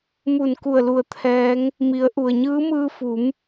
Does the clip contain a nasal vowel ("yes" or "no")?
no